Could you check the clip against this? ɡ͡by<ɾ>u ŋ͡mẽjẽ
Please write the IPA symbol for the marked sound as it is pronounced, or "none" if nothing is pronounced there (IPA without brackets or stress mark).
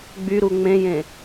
ɾ